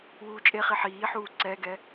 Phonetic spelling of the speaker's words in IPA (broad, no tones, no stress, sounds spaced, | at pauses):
w uː t͡ʃʼ e χ i ħ iː ħ uː ǀ ɛ ɡ ɛ